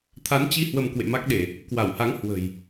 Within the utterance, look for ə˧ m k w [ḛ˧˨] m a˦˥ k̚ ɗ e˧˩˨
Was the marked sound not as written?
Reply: no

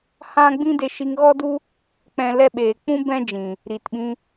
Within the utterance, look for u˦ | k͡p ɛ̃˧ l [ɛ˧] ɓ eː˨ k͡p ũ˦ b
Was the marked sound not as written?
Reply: no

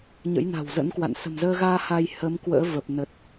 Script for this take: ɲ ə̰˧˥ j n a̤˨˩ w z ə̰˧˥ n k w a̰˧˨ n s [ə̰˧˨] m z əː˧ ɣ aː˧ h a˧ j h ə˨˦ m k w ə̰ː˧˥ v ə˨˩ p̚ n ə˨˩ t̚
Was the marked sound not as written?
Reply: yes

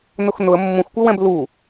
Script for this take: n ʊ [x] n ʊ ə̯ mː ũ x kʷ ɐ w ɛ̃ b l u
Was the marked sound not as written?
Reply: no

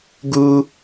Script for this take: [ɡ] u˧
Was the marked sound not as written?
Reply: no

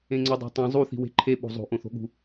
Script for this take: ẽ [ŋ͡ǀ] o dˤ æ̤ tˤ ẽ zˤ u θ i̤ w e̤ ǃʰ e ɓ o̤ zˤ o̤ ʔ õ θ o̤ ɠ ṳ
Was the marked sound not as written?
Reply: no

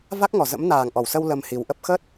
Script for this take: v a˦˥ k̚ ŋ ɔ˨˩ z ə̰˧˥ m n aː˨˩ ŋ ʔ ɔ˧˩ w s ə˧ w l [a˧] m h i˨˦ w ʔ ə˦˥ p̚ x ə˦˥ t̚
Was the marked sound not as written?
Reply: yes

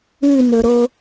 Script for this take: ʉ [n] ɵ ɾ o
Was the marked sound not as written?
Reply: no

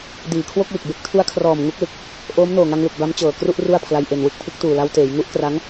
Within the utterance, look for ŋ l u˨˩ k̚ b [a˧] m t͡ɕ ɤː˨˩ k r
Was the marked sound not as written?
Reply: yes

